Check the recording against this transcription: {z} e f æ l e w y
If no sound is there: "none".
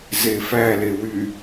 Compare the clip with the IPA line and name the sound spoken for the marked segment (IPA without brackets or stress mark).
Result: z